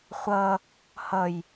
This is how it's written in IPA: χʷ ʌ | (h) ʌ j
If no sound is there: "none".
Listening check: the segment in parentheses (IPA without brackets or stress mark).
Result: h